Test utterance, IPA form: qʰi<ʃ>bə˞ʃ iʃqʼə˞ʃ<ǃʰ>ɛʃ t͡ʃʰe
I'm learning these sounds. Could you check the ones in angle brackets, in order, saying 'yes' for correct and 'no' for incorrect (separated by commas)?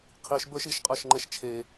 yes, no